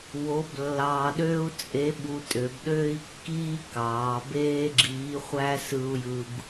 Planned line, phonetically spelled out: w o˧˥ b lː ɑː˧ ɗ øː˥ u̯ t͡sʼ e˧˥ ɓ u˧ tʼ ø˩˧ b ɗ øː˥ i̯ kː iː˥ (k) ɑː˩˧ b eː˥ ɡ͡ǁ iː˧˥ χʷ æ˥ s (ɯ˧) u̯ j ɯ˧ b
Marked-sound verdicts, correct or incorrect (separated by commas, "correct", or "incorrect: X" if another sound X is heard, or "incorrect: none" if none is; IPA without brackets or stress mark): correct, correct